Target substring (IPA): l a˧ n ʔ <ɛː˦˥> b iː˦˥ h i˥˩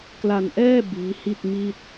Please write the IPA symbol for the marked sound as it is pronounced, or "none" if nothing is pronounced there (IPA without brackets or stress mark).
ɛː˥˩